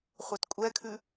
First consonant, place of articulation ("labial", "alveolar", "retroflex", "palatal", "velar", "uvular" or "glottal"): uvular